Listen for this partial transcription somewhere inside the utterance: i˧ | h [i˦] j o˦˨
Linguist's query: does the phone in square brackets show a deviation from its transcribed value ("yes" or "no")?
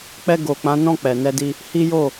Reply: no